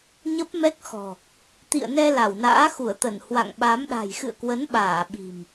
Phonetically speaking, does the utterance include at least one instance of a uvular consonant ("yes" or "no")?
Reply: no